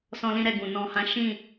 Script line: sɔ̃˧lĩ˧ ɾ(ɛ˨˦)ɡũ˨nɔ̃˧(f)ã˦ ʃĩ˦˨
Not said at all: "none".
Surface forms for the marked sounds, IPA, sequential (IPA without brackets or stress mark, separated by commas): ɛ˧, h